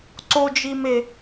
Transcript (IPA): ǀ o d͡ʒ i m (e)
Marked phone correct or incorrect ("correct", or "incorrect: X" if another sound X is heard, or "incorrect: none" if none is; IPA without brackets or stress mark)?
correct